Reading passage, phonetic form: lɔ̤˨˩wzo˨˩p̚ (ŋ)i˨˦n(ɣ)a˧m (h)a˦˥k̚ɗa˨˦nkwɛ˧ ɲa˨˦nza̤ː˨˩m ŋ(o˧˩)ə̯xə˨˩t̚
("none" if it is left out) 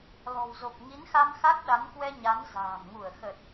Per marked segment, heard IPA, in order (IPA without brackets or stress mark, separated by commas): ŋ, x, x, u˧˩